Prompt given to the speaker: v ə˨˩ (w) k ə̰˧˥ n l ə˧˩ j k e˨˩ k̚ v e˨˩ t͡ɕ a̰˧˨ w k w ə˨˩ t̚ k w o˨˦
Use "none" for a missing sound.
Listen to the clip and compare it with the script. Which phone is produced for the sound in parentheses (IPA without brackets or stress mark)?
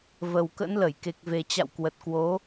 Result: w